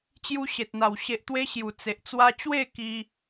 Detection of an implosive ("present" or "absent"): absent